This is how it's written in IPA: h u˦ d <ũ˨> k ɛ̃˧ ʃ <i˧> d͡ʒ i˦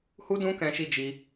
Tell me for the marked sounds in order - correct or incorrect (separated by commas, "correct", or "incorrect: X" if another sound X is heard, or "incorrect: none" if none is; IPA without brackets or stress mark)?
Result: incorrect: ũ˦, correct